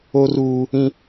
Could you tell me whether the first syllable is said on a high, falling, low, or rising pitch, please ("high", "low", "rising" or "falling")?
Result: high